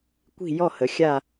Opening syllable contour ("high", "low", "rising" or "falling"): falling